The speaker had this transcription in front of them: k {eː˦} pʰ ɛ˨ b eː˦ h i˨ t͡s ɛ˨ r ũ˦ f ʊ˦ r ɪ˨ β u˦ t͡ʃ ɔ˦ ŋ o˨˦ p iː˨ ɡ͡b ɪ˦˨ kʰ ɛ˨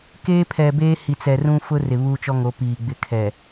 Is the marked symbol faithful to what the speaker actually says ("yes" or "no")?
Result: yes